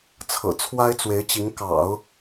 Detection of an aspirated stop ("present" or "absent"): present